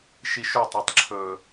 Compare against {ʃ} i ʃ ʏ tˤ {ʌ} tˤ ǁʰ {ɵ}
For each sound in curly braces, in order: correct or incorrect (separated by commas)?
correct, correct, correct